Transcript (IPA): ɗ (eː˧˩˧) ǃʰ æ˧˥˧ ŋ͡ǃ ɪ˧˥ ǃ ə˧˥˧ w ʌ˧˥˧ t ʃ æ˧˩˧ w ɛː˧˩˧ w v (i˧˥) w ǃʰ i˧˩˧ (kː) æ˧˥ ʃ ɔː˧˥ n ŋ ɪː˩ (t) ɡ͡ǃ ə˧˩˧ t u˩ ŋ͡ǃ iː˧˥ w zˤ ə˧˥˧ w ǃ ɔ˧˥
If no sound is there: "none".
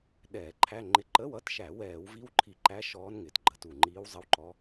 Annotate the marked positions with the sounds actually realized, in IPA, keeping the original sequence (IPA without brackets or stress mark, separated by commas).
ɛː˧˩˧, i˧˥, ǃ, t